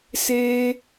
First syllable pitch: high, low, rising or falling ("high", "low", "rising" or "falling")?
high